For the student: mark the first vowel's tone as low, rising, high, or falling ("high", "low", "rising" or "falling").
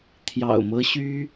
low